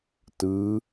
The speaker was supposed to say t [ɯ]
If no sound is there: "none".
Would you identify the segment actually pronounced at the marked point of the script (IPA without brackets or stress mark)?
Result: ɯ